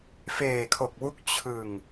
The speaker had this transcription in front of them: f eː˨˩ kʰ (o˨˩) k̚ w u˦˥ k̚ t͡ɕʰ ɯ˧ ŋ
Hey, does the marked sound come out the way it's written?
yes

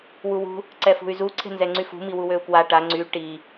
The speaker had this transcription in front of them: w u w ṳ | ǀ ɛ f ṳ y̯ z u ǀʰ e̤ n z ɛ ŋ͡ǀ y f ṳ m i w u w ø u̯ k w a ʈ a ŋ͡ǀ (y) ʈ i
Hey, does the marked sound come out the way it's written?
yes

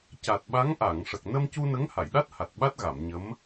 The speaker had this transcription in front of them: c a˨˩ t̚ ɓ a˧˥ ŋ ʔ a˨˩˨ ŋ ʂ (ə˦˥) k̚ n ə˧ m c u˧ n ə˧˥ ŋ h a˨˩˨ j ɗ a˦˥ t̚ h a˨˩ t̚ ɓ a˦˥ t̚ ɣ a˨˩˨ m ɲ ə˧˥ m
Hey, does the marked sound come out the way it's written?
no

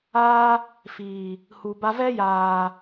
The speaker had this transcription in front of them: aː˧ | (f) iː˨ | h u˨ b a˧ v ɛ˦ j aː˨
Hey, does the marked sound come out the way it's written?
yes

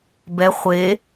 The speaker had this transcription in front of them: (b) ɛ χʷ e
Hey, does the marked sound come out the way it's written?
yes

